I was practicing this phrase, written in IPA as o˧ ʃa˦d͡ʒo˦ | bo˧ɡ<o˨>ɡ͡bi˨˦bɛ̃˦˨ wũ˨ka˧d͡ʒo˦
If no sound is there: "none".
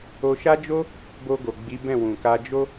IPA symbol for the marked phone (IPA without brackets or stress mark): o˨